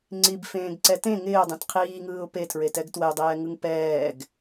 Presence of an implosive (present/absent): absent